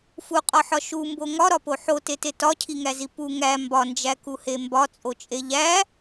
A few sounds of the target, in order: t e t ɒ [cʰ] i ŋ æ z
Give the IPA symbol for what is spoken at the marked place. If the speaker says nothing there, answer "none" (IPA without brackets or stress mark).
cʰ